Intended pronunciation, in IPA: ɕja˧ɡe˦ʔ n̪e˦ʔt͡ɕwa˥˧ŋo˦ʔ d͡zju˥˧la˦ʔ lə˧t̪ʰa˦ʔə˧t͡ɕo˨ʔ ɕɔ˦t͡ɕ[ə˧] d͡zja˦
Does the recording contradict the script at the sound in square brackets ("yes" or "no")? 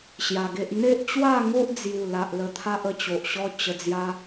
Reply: no